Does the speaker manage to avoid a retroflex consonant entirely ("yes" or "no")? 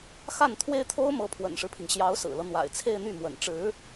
no